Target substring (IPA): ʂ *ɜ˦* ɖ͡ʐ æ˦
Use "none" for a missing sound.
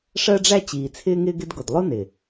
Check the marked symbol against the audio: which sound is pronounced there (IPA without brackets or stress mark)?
ɜ˦